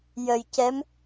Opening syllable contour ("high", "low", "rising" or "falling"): low